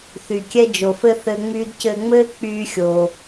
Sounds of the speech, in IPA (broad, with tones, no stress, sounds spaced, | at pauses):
θ y˨ kʲ ɛ˧ d͡ʒ o˨ f ɘ˦ θ ɘː˧ ŋ͡m yː˦ d c ɘː˧ ŋ͡m ɘː˦ k͡p yː˦ xʲ o˧